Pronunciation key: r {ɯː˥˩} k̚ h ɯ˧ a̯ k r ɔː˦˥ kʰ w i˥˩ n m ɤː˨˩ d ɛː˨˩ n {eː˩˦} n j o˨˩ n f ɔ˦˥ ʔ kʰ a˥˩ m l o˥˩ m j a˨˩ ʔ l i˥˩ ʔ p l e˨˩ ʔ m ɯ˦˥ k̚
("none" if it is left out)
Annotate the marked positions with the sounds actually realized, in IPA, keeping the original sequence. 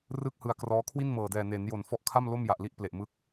ɯː˥˩, eː˩˦

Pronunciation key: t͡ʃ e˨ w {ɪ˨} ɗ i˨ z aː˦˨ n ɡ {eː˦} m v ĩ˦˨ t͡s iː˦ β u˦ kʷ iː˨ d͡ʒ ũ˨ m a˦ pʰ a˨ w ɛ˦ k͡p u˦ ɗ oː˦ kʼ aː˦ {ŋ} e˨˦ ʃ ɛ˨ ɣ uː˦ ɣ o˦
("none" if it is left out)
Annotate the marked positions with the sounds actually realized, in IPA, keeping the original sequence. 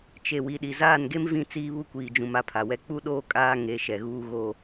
i˨, e˦, ŋ

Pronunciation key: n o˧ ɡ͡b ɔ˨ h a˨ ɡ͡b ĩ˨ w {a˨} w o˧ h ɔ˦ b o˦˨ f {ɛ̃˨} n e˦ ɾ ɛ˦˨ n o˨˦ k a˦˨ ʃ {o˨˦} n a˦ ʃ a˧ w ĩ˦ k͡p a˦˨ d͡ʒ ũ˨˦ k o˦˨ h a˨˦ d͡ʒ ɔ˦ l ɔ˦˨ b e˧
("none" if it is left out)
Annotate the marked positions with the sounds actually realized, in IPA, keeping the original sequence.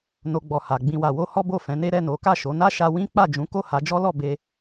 a˨, ɛ̃˨˦, o˨˦

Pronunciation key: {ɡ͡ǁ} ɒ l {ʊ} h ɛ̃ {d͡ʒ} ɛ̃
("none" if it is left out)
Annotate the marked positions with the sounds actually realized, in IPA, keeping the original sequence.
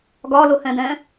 ɡ, ʊ, d

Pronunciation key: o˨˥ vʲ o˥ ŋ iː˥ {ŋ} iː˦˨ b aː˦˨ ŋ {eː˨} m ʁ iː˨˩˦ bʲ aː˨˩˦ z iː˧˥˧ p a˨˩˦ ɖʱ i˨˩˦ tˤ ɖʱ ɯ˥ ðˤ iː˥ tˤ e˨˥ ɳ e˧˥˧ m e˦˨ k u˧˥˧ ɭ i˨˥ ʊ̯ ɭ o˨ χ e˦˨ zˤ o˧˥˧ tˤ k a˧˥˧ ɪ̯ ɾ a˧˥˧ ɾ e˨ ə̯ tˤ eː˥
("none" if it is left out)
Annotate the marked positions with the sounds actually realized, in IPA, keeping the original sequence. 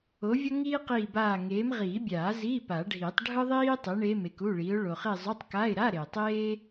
q, eː˨˥

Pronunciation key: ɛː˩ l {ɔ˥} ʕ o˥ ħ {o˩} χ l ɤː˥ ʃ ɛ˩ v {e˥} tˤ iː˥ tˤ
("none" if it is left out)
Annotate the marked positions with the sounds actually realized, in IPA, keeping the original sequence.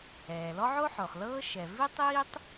ɔ˥, o˩, i˥

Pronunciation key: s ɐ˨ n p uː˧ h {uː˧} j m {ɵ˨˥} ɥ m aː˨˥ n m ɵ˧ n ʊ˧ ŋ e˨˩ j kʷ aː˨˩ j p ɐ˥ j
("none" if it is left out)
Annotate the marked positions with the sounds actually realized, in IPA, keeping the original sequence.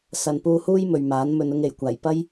uː˥, ɵ˨

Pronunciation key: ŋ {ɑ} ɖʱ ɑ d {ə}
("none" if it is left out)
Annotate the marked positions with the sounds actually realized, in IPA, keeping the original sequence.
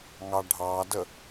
ɑ, ə

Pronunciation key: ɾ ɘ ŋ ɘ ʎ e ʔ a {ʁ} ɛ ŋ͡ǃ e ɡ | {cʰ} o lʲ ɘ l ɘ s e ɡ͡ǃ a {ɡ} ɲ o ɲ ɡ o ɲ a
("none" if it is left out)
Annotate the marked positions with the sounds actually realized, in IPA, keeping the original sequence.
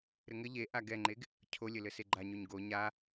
ɡ, cʰ, none

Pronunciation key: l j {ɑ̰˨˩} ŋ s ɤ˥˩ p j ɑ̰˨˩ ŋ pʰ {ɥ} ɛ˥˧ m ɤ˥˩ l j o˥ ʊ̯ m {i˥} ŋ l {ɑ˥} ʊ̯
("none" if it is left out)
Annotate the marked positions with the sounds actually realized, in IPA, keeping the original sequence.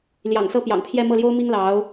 ɑ̰˨˩, j, i˥, ɑ˧˥

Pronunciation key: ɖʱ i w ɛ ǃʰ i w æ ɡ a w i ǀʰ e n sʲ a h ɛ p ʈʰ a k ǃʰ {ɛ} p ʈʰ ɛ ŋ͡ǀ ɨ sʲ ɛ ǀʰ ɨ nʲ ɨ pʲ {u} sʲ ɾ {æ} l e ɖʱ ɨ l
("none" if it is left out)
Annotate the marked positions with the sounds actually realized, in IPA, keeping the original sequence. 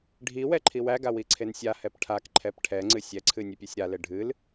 ɛ, o, a

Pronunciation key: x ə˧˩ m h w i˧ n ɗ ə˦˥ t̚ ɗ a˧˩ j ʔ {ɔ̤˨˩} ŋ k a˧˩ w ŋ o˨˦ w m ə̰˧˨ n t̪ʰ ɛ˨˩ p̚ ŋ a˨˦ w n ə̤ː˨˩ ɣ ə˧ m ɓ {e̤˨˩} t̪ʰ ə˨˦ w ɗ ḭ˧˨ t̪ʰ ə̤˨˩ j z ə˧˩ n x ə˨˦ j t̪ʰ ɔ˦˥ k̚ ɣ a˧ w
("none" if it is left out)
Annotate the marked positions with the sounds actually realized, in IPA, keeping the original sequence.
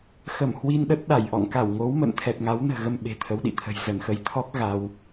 ɔ̰˧˨, e̤˨˩

